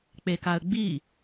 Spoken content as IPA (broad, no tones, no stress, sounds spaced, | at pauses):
k͡p e k a ə̯ ɡ͡b i